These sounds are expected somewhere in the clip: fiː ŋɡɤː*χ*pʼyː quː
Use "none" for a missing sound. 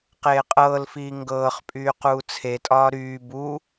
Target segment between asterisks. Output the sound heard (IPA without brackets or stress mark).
χ